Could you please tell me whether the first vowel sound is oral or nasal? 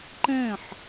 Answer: nasal